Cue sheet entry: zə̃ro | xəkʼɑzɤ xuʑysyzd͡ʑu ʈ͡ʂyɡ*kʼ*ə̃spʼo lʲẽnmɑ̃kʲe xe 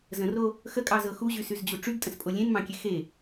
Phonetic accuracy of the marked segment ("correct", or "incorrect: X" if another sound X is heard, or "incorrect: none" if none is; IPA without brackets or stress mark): incorrect: tʼ